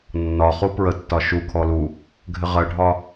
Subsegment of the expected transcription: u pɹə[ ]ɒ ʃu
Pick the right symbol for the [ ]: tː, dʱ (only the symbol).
tː